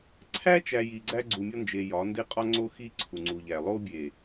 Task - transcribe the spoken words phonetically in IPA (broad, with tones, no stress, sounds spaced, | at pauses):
ǀʰ æ˦ t͡ʃ æ˨ j i˨ ɡ͡ǀ æ˦ ɡ͡ǀ u˨ mʲ ɒ˦ n d͡ʒ e˨ j ɒ˨˦ n d e˦ qʼ ɒ˦ ŋ͡ǀ o˦ x i˦ ǀʰ u˨ ŋ͡ǀ u˨ ʎ æ˨ lˠ o˦ bʲ e˨